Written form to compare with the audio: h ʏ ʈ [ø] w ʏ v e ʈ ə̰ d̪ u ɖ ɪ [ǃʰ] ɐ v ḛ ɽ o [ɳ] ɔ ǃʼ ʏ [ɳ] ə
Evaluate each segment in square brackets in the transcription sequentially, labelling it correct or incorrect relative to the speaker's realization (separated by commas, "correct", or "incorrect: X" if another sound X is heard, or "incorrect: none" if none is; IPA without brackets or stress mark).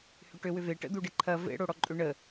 correct, correct, incorrect: ɽ, correct